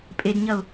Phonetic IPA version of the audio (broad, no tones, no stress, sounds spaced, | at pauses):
pʼ e d ɲ ɐ ʊ̯